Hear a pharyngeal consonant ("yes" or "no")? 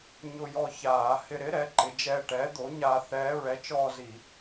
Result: no